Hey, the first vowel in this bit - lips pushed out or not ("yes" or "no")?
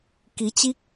no